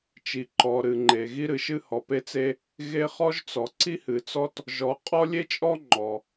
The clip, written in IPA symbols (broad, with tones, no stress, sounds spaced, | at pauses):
t͡ʃ i˩ ǃ ɔ˩ ɾ ɨ˩ ŋ͡ǃ e˩ ɣ i˥ ɾ ɨ˩ ʃ ɨ˥ h ɔ˩ p e˥ t͡s e˥ | ɣ e˥ χ ɔ˥ ʒ t͡s ɔ˩ ǀ i˥ h ɨ˩ t͡s ɔ˥ t | ʒ ɔ˩ qʼ ɔ˥ lʲ e˥ t͡ʃʼ ɔ˥ ŋ͡ǃ ɔ˩